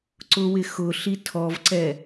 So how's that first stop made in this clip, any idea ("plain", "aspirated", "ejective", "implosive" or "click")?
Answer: click